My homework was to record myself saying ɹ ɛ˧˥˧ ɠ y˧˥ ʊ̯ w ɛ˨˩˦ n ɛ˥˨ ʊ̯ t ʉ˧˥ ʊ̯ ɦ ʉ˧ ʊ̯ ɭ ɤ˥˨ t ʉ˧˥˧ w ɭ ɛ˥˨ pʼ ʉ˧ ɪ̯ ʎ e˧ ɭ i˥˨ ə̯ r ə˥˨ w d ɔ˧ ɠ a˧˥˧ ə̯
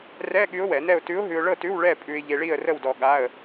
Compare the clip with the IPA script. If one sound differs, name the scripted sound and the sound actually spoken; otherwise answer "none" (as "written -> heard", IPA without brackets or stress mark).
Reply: ɹ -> r